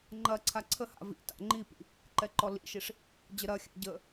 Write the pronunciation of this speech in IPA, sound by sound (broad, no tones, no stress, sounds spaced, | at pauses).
ŋ͡ǃ ɐ ǀʰ a ǀʰ ə h a̰ v ḭ t a̰ ŋ͡ǃ i p ḭ | ǃ ɛ ǃ ɔ l ḭ ʃ i ʂ | d͡ʑ ə ɾ ɐ xʲ a̰ ɟ ə